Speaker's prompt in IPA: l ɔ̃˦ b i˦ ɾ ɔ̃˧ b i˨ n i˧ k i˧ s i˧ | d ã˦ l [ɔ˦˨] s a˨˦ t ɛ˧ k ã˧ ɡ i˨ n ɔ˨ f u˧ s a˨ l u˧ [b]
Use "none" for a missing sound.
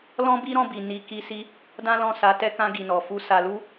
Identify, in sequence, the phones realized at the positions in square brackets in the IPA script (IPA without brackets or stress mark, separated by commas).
ɔ̃˦˨, none